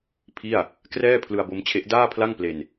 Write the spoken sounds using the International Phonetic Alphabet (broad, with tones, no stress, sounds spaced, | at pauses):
pʰ i˥˩ a̯ | k r ɛː˥˩ pʰ l ɯ˧ a̯ b o˦˥ m t͡ɕʰ e˦˥ ʔ d aː˥˩ pʰ l a˥˩ ŋ p l e˧ n